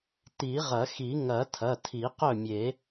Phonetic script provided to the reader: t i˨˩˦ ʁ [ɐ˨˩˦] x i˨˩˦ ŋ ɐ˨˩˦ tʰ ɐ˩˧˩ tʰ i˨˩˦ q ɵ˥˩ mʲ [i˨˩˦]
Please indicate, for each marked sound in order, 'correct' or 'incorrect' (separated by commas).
correct, incorrect